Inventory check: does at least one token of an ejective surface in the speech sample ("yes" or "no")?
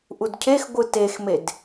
no